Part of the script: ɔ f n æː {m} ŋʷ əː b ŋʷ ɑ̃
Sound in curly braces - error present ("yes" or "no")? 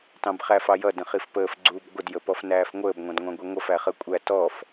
yes